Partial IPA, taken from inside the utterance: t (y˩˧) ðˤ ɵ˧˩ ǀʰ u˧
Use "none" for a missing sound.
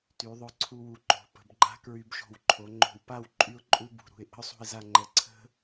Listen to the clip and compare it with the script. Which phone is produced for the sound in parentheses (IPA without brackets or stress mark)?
y˩˧